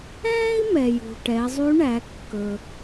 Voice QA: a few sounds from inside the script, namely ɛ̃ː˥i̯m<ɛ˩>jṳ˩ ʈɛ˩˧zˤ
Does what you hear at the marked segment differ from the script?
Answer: no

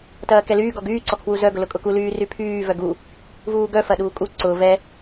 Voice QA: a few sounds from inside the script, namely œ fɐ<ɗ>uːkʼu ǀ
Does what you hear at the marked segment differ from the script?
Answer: no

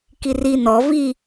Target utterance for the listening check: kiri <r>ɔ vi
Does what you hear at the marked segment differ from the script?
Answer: yes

